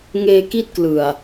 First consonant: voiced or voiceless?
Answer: voiced